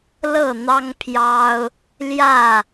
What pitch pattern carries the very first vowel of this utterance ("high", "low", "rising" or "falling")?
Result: falling